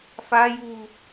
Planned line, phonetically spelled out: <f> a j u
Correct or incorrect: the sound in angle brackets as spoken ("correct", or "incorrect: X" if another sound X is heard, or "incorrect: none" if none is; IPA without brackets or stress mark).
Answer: correct